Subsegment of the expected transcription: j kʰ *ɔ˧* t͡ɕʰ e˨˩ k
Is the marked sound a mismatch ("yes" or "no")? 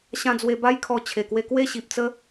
no